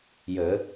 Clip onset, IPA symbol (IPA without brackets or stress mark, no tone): j